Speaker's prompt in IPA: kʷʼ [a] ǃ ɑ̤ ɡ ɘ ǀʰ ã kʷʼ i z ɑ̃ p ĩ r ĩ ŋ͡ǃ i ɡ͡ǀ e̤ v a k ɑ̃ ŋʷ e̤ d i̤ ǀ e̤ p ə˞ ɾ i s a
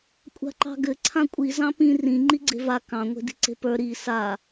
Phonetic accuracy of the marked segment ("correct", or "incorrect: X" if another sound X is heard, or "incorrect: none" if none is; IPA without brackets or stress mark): incorrect: a̤